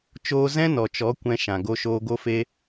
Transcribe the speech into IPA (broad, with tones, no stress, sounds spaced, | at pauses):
t͡ʃ oː˦ z ɛ̃˦ n ɔ˨ t͡ʃ ɔ˨˦ kʷ ɛ̃˧ ʃ ã˨ ɡ o˧ ʃ oː˧ ɡ o˦ f e˦